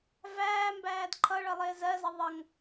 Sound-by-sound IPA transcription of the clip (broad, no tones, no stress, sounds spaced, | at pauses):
v æː m b æː d ǃʰ ʌ ɭ ʌ lˠ ɪː z ɜ z ʌ ðˤ ʌ ŋ